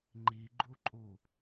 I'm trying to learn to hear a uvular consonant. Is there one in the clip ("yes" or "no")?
no